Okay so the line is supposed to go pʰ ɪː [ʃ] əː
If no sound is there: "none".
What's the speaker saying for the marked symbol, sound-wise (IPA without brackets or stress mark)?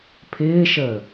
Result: ʃ